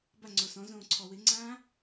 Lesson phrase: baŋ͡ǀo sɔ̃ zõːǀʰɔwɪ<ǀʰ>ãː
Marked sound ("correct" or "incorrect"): incorrect